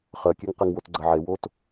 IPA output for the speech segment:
χ ɜ kʲ ɛ ŋ q ɛ ŋ w o t ɡ͡ǀ ɐ ʕ e w o t

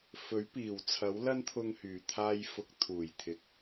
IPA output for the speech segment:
f ɵ˨˥ ɥ p iː˨˩ w t͡sʰ ɐ˨˥ w l ɐ˥ n t̪ʰ ʊ˧ ŋ h yː˨˩ t̪ʰ aː˧ j f ʊ˨˥ k̚ t̪ʰ uː˨˩ j t̪ʰ ɪ˨ k̚

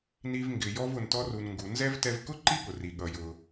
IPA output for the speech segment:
n i˧ v ŋ ɡ ɪ˩ j ɔ˧ v ʊ˩ n t ɔ˧ r u˩ n ŋ ɡ u˩ n z ɛ˥ v t ɛ˧ v k ʊ˥ ǃ i˥ ɠ ʊ˩ r i˩ ɠ ʌ˩ j ʊ˩

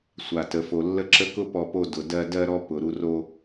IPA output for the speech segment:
sʷ a˨ t ə˨ f o˨ lː ə˦ ǁ ə˦ k ʊ˦ p ɔ˧ p o˧ d ʊ˨ d ɜ˧ d ɜ˧ ɾ ɔ˧ p ʊ˨ ɾ u˧ r o˧

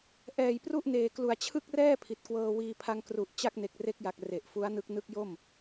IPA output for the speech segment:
ʔ ɛː˨˩ j p r u˥˩ ʔ n eː˨˩ k l u˨˩ a̯ t͡ɕʰ ɯ˥˩ k̚ r ɛː˥˩ pʰ i˨˩ t̚ k w ɤː˧ w iː˧ pʰ a˧ ŋ k r u˨˩ ʔ t͡ɕ a˥˩ k̚ n e˨˩ k̚ r e˦˥ k̚ j a˨˩ k̚ r e˨˩ ʔ f u˦˥ a̯ n ɯ˦˥ k̚ n ɯ˦˥ k̚ j o˥˩ m

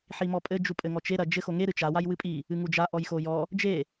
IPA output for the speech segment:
ħ i m ɔ pʼ ɘ d͡ʒ u pʼ ɘ ŋ ɔ t͡ʃ e ɾ ɐ d͡ʒ ɘ x o ŋ e ɾ ɨ t͡ʃ a w a j w ɨ pʼ i | ɨ ŋ u d͡ʒ a ʔ ɔ j x o j ɔ | d͡ʒ e

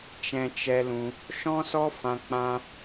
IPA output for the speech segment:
t͡ʃ ɛ̃˧ t͡ʃ ɛ˧ l ũ˧ | ʃ ɔ̃˦ s ɔ˦ f ã˧ k͡p ã˦

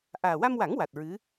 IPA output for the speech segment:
ʔ aː˨˩ w a˧ m w a˨˩˦ ŋ w a˨˩ t̚ ɹ ɨ˧˥

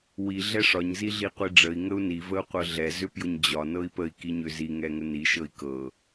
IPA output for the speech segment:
w i ɮ ɛ ʂ ɒ ɲ z i ɮ i qʷ i ɖ͡ʐ ə i̯ ŋ ə u̯ n i v ə u̯ qʷ ɤ ɮ ɛ z ʏ p j ʊ ɲ d͡ʑ ɒ n ɤ i̯ p ə i̯ k i ɲ ʏ z i ŋ ɛ ŋ ə n i ʃ ɤ i̯ k ɤ

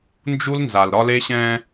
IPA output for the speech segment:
n d͡ʒ u˦ l n z a˨ l ɾ ɒ˦ l e˦ ɕ ɛ̃˦

